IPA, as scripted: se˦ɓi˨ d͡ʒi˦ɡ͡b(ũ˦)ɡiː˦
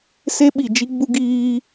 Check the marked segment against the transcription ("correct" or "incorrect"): incorrect